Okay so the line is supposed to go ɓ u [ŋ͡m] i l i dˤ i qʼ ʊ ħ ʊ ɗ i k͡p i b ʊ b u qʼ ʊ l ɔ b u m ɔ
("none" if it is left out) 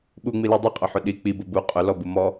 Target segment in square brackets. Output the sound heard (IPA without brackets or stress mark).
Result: ŋ͡m